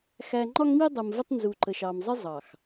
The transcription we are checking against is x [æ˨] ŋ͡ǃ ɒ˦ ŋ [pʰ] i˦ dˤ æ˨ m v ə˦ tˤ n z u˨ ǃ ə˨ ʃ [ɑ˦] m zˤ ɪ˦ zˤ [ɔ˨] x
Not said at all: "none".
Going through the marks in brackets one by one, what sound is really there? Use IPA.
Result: æ˨, m, ɑ˨, ɑ˨

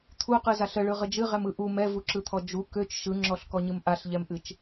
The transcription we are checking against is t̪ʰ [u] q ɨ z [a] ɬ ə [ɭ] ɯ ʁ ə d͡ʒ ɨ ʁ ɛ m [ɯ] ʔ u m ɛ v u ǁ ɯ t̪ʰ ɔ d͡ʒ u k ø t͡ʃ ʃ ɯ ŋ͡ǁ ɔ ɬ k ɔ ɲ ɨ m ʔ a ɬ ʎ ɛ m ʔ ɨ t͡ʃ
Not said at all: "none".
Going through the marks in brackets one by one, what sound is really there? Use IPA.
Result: u, a, ɭ, ɯ

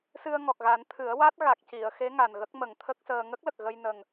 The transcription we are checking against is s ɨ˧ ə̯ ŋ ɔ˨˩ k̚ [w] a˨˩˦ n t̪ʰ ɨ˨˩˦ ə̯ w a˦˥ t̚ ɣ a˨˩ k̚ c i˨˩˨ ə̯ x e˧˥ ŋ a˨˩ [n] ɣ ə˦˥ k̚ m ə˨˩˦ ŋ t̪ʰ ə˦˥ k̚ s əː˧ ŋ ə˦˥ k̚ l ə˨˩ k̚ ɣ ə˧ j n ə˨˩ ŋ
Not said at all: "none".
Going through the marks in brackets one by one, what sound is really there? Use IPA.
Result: ɣ, n

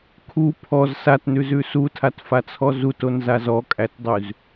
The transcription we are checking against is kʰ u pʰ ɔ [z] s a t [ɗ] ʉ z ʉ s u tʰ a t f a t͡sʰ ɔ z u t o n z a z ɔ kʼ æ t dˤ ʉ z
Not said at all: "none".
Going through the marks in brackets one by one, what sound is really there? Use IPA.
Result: z, n

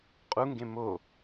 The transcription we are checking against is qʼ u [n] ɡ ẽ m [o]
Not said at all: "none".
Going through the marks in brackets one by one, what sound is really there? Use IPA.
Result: ŋ, o

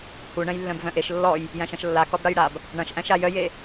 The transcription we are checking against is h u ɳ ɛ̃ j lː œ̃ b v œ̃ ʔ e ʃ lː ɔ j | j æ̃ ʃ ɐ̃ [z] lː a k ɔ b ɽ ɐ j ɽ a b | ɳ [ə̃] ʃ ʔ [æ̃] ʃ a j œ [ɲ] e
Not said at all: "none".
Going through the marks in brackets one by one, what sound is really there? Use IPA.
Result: ʃ, ɐ̃, æ̃, j

